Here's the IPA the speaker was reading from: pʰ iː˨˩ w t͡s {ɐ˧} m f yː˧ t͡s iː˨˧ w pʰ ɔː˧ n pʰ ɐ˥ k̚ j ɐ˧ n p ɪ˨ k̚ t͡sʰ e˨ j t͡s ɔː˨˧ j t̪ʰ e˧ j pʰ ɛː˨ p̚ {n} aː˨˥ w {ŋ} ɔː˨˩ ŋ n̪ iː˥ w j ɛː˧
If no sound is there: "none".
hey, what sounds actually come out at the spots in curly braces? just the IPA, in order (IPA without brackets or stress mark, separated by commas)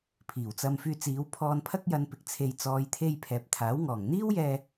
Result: ɐ˧, t̪ʰ, ŋ